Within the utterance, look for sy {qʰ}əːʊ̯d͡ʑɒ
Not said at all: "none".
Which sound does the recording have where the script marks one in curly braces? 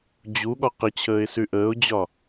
ʔ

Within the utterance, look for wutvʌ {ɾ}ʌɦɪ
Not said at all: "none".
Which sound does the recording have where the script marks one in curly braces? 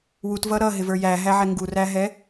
ɾ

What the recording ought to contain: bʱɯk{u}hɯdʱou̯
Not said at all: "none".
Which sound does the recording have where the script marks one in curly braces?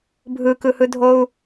ɯ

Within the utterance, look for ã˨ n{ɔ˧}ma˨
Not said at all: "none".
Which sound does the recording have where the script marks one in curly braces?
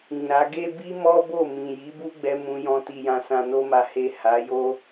o˧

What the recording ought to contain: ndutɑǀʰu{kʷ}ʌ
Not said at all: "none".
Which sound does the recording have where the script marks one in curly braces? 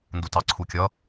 kʲ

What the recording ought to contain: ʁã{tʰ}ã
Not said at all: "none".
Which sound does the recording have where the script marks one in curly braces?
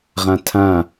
tʰ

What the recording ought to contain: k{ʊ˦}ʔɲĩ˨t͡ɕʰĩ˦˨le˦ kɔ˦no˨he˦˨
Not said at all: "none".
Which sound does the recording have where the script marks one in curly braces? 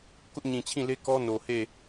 ʊ˦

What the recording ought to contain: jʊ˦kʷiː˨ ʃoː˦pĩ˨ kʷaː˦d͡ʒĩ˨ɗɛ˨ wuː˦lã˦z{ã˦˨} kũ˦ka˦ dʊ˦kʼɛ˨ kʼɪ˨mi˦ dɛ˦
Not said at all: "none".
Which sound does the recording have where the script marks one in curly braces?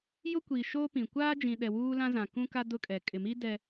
ã˨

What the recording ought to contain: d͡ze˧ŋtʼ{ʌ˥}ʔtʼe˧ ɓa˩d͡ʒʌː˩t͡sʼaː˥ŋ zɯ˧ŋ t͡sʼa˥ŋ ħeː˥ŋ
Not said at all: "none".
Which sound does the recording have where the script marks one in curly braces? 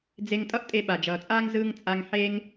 ʌ˥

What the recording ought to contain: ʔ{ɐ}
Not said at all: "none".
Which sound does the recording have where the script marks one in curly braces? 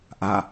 a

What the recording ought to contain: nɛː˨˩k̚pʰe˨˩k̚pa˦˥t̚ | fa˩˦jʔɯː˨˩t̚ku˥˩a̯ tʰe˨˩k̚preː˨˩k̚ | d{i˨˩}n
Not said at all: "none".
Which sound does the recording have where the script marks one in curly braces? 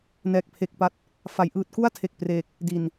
i˨˩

